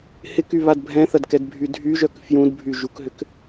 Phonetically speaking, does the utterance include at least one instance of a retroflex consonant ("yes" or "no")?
no